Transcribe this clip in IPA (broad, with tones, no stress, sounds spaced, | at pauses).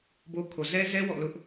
b o˦ kʰ o˨ z ɛ˦ z ɛ˦ w ɔ̰˦˨ l ʊ˦ ʔ